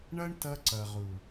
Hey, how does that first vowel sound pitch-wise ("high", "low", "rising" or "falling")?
high